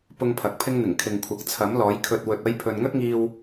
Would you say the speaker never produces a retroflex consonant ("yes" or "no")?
yes